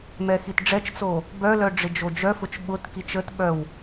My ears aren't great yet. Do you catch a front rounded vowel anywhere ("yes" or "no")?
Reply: yes